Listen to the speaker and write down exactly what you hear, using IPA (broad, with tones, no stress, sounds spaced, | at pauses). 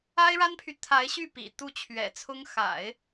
a˥ ɪ̯ ɻ a˥ n pʰ y˨ t̪ʰ a˧˥ ɪ̯ ɕ y˥˩ p ḭ˨˩ t̪ u˥˩ t͡ɕʰ ɥ ɛ̰˨˩ t͡sʰ ʊ˥ ŋ x a̰˨˩˦ ɪ̯